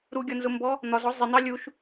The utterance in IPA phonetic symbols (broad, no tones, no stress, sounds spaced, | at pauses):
ɾ u ɡʲ ɒ n z ʊ m b ɔ | n̪ ɒ z ɔ zˤ ɪ n̪ ɑ lʲ u ʃ